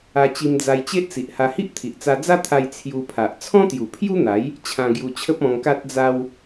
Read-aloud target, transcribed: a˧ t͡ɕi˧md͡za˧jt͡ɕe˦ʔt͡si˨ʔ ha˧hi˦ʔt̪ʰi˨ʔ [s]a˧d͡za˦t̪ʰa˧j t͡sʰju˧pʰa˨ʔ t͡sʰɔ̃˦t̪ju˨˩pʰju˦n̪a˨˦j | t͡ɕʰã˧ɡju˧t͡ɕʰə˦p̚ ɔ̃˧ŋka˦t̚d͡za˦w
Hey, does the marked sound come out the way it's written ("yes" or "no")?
no